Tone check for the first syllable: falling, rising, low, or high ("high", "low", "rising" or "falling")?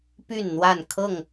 falling